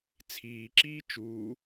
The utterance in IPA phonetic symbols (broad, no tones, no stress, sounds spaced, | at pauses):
t͡sʰ iː ǁ iː t͡ʃ uː